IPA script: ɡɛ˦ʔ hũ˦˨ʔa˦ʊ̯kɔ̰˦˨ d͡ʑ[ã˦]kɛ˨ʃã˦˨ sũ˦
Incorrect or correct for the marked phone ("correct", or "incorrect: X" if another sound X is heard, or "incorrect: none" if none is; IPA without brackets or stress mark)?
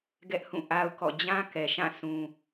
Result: correct